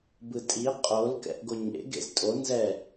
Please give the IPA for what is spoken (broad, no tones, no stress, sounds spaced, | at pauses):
b ɯ tʼ i qʼ o l k ɛ̰ ʔ ɡ o ɲ ḛ ɡ ḛ z tʼ o n z ɛ